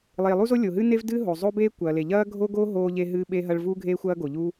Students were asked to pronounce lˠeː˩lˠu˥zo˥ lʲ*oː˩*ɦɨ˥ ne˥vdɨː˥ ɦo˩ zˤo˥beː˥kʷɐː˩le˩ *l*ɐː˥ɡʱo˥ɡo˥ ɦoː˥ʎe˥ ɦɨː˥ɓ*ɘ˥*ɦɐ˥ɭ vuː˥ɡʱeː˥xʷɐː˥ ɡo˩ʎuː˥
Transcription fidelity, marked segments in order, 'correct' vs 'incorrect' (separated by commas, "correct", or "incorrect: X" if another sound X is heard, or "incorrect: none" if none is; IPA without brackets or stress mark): incorrect: o˩, incorrect: ʎ, incorrect: e˥